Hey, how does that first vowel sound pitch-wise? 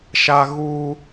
high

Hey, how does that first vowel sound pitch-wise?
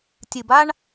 low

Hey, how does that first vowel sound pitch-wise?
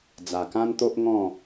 low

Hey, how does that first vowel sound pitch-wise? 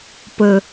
low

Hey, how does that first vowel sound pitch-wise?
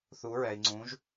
rising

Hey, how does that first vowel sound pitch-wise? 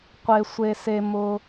low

